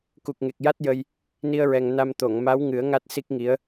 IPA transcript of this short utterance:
k u˨˩ k̚ ŋ e˨˩ k̚ j a˦˥ t̚ j ə˧ j | n i˧ ə̯ ɹ ɛ˨˩ ŋ n a˧ m t̪ o˨˩˨ ŋ m a˧˥ w ŋ ɨ˨˩˦ ə̯ ŋ a˦˥ t̚ s i˦˥ k̚ ŋ i˧˥ ə̯

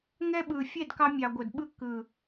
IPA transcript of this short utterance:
ŋ ɛ˧ ɓ ɯ˨ fʲ ɛ˦˨ d k ɑ˧ mʲ ɑ˨ ɡʷ ə˨ d ɓ ɯ˧ k ɯ˨

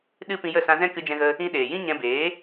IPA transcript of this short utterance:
ɗ ɨ˦ p ĩ˧ j ə˦˨ s ã˧ z ɛ̃˦ k ɨ˧ d͡ʒ ɛ̃˧ ɣ ə˧ | ĩ˧ ɗ eː˨ j ĩ˦ ɲ ɛ̃˧ b eː˨˦

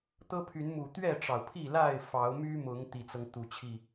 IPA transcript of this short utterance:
t̪ ɤ˦ pʰ y˨˦ n m u˨˩ t̪ ɥ ɛ˥˨ ʈ͡ʂ ɑ˩ ʊ̯ pʰ i˥˨ l a˥˨ ɪ̯ f ɑ˨˦ ʊ̯ m y˦ m ʊ˨˦ ŋ t̪ i˨˩ t͡s ɤ˦ ŋ t̪ u˨˩ t͡ɕʰ i˥˨

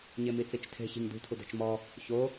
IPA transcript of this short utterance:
ɲ e m i t͡s i t͡ʃ tʰ e̤ ç i̤ ɲ d ṳ tʰ u d ɛ̤ t͡ʃ m ɔ | ç o

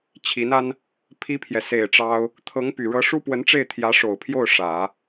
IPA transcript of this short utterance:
t͡ɕʰ i˧˥ n a˥ n | pʰ i˥ pʰ j ɛ˨ s e˨˩ ɪ̯ ʈ͡ʂ ɑ˥ ʊ̯ | t̪ʰ ɤ˧˥ ŋ p y˨˩ ɻ ɤ˧˥ ʂ u˥ p w ə˧˥ n ʈ͡ʂ e˥˩ ɪ̯ t̪ʰ j ä˧˥ ʂ o˨˩ ʊ̯ pʰ j o˥˩ ʊ̯ ʂ ä˨˩˦

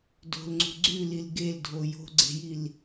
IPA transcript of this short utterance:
d o̤ l ŋ͡ǀ ṳ ɡ͡ǀ ʉ l i l ɡ e l dʱ o j o̤ ɡ͡ǀ e̤ j i l

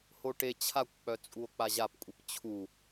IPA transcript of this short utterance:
h o ʈ e t͡ɕʰ a kʷ k͡p œ t͡sʼ u o̯ k͡p a ʑ a p kʷʼ i p t͡ɕʰ u

